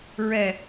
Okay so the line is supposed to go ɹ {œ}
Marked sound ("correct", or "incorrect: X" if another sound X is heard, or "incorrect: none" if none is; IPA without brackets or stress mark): incorrect: ɛ